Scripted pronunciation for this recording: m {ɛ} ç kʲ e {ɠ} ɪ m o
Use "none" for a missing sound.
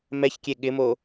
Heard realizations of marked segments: ɛ, ɠ

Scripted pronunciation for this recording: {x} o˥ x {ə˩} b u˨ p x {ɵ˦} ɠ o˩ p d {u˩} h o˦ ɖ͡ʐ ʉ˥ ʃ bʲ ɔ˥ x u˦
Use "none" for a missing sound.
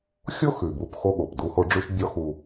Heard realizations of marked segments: xʲ, ʉ˩, o˦, u˦

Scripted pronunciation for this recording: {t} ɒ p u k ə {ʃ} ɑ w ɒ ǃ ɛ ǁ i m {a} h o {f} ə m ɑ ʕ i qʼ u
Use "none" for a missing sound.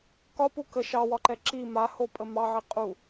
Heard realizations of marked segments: k, ʃ, a, pʼ

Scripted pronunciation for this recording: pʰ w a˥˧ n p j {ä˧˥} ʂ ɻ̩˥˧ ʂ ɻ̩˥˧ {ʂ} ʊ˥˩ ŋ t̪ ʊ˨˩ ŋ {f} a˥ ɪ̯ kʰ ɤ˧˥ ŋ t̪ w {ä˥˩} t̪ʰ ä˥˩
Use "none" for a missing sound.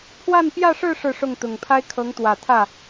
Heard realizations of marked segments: ä˥˧, ʂ, pʰ, ä˨˩

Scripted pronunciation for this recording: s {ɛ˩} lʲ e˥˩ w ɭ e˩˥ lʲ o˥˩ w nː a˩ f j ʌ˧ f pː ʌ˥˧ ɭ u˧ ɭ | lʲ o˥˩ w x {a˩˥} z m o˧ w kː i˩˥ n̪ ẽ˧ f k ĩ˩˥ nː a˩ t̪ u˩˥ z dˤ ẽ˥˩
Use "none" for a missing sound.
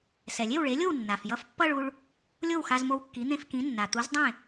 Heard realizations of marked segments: ɛ˩, a˧

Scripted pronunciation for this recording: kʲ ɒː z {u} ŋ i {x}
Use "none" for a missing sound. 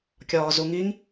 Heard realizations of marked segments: u, ŋ

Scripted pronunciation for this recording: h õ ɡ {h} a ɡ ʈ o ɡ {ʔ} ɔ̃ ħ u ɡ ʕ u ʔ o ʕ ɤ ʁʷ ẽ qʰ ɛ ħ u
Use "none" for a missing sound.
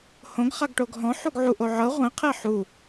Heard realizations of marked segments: χ, ɦ

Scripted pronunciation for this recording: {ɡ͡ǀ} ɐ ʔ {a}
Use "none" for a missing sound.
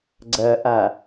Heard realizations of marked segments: ɡ͡ǀ, a

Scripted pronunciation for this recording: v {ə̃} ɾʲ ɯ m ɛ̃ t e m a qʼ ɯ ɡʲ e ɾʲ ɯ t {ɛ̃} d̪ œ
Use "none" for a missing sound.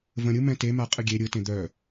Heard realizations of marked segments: ə̃, ẽ

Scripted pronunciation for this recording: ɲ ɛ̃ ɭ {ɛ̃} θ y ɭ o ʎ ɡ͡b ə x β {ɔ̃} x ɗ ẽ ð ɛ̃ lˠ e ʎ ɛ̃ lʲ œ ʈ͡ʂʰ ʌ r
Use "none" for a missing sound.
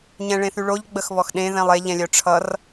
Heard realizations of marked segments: ẽ, ɔ

